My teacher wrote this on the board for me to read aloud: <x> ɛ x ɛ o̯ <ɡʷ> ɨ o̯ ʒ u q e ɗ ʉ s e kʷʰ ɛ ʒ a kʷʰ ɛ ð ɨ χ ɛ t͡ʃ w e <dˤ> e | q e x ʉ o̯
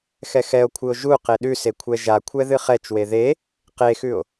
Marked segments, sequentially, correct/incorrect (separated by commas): correct, incorrect, incorrect